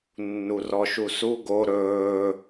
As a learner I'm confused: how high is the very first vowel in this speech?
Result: high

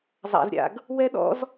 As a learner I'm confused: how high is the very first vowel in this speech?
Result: low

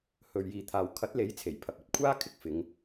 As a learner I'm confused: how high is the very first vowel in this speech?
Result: mid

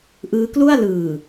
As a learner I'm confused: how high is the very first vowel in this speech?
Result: high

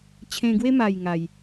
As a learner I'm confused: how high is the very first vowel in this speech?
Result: mid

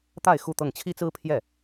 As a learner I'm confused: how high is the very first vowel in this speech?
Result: low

